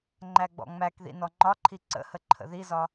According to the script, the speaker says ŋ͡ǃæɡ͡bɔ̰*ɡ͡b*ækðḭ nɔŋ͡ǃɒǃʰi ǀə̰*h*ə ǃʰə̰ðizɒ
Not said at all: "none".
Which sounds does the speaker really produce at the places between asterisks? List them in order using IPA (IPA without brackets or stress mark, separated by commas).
ŋ͡m, h